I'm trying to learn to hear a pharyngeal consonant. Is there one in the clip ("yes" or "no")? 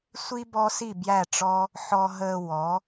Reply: yes